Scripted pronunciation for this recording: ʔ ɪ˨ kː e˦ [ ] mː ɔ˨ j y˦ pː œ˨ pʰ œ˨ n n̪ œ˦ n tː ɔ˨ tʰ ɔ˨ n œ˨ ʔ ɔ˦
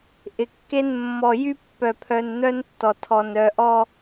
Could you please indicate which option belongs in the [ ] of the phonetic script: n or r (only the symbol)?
n